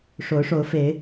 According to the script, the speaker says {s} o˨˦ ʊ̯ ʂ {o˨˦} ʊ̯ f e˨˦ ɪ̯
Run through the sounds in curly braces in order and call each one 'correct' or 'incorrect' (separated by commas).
incorrect, correct